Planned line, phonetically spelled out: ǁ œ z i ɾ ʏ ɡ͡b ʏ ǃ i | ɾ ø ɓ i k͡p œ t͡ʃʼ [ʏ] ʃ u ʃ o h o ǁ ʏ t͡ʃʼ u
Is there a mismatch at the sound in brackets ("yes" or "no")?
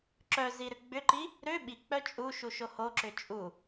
yes